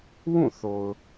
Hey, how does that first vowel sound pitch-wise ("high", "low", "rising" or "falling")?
falling